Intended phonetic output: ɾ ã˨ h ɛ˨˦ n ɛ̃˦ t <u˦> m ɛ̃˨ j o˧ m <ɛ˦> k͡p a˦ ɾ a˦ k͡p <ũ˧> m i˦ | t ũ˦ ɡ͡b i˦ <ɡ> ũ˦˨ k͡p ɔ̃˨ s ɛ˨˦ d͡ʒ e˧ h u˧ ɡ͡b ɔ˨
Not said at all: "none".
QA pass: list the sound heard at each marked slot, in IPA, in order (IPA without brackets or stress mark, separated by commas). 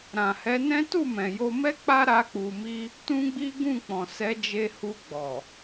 u˦˨, ɛ˦, u˧, ɡ